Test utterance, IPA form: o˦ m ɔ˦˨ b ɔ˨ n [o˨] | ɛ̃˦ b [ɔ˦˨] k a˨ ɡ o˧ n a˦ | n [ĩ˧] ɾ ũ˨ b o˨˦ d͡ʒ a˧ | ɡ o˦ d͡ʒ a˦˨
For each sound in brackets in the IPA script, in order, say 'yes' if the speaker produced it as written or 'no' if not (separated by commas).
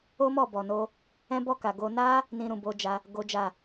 no, yes, yes